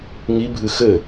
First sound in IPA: ŋ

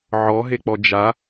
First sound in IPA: ʕ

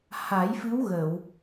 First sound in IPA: h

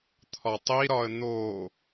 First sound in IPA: t̪ʰ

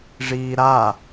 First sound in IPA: ʐ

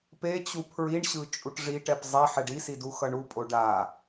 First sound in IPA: p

